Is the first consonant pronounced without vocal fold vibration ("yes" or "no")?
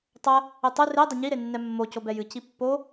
yes